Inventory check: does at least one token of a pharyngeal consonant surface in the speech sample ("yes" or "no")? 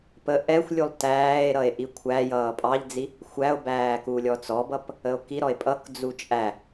no